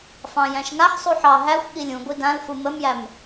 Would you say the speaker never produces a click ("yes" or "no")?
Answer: yes